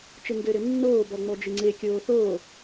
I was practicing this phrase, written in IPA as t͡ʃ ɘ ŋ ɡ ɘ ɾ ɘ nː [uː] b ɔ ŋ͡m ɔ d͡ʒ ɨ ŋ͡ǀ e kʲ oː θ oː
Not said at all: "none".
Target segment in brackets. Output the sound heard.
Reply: oː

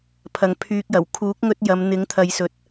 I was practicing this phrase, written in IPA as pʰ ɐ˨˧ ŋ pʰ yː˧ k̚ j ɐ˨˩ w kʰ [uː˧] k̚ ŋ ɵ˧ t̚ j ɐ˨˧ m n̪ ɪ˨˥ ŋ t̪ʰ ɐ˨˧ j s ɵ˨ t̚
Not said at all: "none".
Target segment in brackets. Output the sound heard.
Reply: uː˨˥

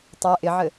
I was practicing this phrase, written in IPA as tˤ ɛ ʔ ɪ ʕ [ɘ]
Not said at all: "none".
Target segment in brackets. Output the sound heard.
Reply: ɘ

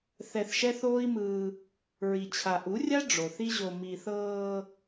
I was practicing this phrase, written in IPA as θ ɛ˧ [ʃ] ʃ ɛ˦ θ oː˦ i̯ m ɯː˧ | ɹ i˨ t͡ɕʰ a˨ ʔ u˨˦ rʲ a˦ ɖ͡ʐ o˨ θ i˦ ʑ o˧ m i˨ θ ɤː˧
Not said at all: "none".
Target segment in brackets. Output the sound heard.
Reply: θ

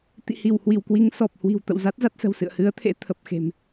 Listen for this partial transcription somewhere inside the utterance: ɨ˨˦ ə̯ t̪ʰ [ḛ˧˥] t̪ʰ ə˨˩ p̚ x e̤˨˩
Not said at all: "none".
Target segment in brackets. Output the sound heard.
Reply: ḛ˧˥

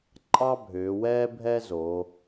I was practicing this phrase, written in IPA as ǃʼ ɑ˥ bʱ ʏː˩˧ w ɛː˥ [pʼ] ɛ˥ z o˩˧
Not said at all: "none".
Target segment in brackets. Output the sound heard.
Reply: bʱ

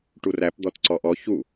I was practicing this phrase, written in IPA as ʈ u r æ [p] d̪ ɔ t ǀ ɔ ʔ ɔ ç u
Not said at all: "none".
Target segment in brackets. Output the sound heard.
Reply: p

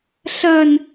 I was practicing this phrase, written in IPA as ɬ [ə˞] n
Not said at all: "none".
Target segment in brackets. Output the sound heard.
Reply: ɐ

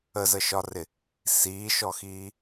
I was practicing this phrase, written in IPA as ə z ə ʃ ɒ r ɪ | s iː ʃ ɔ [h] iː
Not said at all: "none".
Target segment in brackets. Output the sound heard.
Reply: x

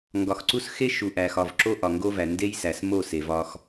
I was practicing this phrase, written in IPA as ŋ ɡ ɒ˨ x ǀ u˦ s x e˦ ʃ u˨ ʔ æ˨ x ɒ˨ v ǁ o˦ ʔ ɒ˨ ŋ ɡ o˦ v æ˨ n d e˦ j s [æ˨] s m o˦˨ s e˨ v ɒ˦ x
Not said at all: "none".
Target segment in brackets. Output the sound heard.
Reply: æ˨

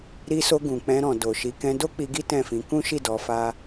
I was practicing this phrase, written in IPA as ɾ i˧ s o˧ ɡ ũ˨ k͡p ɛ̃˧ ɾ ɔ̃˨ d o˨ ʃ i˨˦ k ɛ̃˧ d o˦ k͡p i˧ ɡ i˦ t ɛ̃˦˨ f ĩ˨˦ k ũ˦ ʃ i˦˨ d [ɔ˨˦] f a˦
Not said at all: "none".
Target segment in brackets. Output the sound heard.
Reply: ɔ˨˦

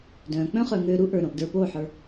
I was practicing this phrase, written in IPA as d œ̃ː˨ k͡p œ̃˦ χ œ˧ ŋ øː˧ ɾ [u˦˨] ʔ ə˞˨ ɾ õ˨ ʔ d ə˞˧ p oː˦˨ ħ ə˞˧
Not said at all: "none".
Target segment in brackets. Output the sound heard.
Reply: u˦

